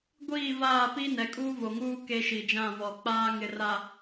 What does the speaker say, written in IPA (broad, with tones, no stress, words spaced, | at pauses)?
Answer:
ɡʷiː˦˨vaː˦˨pi˦ nɛ˨kʼuː˦vo˨ŋuː˦ ke˦ʃi˨d͡ʒã˦˨vɔ˨ k͡paː˦ ŋɪ˨ra˨